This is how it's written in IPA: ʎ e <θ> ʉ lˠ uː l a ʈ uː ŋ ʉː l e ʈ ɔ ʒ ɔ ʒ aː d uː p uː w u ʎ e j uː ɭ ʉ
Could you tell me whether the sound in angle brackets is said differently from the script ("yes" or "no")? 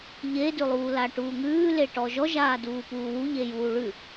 yes